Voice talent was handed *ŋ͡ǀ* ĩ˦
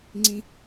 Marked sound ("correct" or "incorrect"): correct